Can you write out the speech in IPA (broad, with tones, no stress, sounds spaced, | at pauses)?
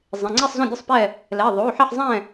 zˤ ẽ˩˧˩ ŋ͡ǀ i˥˨ sˤ z õ˥˨ dʲ ɵ˥˨ sˤ p ɛ˥˨ | l ɛ˩˧˩ ðˤ o˩˧˩ ħ ɛ˥˨ ħ zˤ ɛ̃˥˨